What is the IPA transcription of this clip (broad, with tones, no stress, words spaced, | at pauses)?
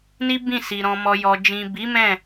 ni˦bĩ˦˨si˨ ɾɔ̃˨mɔ˨jɔ˨d͡ʒĩ˨ bi˨˦mɛ̃˦˨